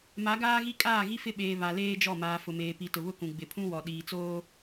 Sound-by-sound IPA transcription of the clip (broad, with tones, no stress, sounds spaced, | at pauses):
m a˨˦ ɡ aː˦ ɣ i˦ kʼ aː˦˨ ɣ i˦ f ɪ˦˨ ɓ eː˨ β a˨ l eː˦ d͡ʒ ɔ˦˨ m aː˨ f ʊ˨ m eː˨ p i˨ t ʊ˨ β ʊ˦ k ũ˨ ɡ͡b ɪ˨ pʰ ũ˦ w ɔ˨ ɗ iː˨ t͡s oː˦